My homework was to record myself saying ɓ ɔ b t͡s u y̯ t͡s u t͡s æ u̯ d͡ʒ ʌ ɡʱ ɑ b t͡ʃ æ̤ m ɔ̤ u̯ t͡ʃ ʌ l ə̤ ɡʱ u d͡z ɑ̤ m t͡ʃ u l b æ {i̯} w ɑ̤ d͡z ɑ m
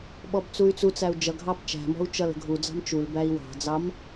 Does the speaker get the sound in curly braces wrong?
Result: no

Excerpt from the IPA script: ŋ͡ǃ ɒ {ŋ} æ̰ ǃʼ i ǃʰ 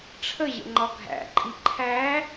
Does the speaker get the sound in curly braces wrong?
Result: yes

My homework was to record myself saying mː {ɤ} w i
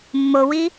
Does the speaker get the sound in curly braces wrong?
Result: yes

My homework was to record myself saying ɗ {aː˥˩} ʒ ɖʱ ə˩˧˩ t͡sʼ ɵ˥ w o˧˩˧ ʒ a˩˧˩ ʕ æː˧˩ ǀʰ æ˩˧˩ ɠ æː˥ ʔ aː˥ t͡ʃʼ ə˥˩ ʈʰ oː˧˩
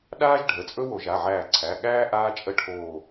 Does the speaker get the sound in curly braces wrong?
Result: yes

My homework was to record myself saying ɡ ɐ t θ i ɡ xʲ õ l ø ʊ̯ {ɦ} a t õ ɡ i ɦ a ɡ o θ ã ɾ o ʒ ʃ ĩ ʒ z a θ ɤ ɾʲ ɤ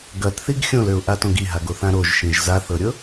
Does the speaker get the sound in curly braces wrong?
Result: yes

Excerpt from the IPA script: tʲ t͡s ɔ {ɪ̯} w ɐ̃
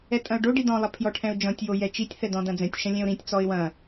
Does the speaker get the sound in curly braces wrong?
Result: no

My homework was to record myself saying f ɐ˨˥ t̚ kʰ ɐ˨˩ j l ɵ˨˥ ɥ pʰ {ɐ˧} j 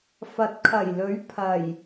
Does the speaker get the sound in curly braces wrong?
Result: yes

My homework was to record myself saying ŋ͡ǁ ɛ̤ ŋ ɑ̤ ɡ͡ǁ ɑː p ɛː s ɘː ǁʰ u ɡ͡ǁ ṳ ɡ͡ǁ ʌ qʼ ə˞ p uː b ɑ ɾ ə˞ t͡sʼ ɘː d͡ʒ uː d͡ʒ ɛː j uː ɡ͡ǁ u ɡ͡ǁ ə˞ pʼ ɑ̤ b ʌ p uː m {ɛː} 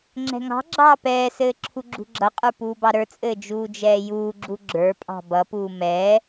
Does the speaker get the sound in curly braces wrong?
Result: no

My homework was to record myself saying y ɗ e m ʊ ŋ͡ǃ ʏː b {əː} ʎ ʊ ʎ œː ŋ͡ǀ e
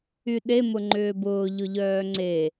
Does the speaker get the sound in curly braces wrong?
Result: yes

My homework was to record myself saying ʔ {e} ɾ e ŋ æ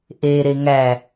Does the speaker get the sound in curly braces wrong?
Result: no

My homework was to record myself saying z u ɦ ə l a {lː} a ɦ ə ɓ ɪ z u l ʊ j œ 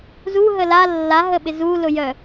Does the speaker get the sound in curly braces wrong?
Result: no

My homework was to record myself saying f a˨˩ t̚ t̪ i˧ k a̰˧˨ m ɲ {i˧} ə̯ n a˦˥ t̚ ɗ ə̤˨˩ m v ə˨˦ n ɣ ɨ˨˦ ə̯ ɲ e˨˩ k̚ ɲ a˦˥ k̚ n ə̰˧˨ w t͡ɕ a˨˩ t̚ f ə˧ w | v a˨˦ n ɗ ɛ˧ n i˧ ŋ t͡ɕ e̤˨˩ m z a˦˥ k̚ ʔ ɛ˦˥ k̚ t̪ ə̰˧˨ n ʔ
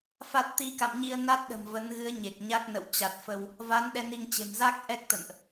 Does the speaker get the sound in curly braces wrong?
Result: no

